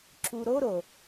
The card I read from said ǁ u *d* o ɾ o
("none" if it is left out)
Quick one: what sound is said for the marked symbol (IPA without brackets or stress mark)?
ɾ